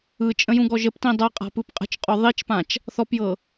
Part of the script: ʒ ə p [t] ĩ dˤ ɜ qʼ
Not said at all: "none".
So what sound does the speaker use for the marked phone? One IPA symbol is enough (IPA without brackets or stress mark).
t